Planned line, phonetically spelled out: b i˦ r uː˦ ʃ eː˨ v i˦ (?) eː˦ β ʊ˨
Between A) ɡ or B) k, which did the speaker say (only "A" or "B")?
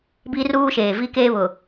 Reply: B